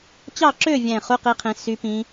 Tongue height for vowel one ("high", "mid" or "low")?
low